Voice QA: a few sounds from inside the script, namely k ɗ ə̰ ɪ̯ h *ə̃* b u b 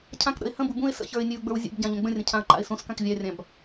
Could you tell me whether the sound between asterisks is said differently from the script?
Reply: no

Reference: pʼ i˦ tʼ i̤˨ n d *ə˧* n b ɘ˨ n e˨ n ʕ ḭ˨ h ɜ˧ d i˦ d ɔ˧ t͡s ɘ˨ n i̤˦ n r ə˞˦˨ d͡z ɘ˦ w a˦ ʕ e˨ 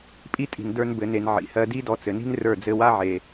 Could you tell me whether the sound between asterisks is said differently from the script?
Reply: yes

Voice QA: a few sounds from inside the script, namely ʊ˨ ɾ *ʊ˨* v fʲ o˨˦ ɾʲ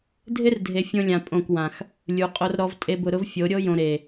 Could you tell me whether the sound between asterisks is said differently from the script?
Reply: yes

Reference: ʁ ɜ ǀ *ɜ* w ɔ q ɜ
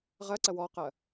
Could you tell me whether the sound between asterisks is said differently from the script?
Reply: no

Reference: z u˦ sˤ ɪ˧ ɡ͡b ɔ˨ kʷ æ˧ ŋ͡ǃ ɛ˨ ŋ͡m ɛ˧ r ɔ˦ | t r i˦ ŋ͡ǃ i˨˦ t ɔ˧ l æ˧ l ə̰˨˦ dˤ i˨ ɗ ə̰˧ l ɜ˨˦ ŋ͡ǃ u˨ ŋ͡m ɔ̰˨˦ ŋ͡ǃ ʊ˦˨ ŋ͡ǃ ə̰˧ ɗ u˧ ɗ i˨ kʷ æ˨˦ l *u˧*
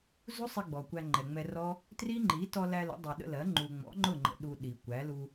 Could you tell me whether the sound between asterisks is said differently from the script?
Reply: no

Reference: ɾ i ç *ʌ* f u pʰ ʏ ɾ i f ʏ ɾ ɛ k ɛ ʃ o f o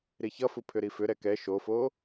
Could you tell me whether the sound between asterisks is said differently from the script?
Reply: no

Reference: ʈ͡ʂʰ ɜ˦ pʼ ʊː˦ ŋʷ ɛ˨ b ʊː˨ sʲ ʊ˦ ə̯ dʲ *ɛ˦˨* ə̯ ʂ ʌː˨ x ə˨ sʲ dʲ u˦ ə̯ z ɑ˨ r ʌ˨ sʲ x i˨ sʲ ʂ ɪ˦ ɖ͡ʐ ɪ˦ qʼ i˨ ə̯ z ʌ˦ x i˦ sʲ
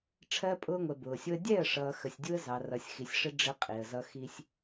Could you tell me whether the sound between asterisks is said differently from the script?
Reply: no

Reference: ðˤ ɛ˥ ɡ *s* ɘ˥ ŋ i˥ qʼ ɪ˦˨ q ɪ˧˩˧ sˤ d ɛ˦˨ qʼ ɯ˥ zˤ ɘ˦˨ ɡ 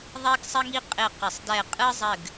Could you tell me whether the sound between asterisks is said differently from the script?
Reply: yes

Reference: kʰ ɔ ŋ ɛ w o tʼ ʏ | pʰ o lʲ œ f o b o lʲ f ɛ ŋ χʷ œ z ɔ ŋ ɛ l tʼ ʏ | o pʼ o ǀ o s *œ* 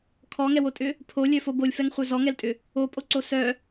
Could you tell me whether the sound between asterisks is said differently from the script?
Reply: no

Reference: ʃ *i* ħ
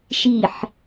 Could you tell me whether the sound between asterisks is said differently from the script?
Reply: no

